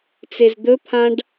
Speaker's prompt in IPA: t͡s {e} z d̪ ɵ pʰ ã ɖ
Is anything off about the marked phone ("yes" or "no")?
no